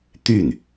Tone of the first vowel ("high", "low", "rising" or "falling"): falling